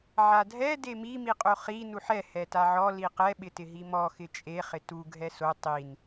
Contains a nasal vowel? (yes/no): no